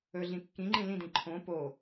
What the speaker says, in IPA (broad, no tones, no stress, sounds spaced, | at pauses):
ɵ ɮ ĩ kː ĩ ŋ͡ǃ ĩ l ĩ d ĩ ǃʰ õ p o